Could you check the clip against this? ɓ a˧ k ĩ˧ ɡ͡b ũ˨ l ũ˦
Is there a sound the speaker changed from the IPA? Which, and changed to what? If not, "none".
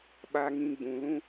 k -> ŋ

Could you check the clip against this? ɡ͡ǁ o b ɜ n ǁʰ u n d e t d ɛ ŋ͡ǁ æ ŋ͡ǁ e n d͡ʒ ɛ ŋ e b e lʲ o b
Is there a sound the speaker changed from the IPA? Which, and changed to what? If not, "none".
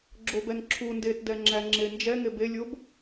ɜ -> ɛ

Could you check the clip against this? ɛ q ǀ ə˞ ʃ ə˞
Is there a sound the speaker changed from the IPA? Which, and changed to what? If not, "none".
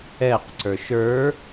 none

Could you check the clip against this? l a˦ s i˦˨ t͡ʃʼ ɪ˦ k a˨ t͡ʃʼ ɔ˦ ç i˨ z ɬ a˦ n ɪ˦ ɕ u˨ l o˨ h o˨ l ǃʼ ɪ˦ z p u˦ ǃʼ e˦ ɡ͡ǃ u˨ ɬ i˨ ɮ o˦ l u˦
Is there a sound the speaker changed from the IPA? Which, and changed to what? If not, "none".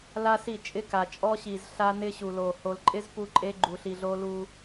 ç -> ɕ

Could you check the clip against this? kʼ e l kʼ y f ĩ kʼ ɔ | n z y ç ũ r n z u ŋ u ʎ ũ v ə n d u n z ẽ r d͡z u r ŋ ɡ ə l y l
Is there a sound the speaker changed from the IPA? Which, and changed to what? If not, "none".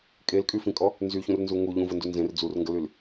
none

